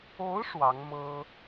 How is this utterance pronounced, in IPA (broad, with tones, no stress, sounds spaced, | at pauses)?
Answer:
o˧˥ ʊ̯ ʂ w ɑ˧˥ ŋ m ɤ˥